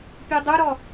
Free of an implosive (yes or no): yes